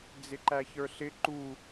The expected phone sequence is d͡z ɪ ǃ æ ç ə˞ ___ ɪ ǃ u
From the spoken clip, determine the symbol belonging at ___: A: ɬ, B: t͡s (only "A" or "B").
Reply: A